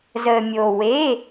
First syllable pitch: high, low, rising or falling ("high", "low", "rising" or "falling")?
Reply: low